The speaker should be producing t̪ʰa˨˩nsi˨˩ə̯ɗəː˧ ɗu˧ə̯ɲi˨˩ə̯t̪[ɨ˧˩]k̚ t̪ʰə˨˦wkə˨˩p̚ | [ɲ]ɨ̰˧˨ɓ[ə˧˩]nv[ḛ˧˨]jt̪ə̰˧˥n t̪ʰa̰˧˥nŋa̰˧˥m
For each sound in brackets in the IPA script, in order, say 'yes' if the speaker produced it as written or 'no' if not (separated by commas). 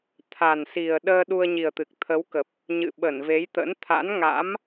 no, yes, yes, no